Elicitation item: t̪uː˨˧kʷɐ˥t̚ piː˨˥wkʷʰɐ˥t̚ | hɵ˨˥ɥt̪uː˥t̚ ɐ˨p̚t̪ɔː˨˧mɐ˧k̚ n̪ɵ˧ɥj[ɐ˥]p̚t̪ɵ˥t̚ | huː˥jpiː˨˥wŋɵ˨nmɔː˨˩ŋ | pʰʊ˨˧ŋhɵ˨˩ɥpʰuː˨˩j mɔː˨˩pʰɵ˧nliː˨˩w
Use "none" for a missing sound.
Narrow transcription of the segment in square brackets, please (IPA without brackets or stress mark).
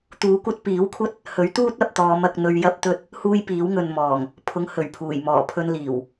ɐ˥